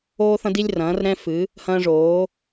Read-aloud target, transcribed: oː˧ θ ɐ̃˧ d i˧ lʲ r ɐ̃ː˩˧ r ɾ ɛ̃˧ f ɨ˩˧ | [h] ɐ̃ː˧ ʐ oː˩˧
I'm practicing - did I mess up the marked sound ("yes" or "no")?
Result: no